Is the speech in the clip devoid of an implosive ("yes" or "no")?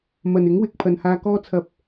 yes